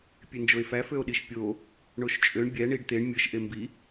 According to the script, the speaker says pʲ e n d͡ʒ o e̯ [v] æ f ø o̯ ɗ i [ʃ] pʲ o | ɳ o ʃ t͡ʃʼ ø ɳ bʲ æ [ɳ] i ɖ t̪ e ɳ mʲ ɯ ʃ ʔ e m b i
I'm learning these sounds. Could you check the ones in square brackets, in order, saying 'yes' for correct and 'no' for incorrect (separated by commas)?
no, yes, yes